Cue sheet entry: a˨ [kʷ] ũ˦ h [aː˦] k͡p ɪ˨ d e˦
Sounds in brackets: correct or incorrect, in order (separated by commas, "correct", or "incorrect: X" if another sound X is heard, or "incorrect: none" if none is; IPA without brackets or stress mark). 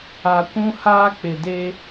correct, correct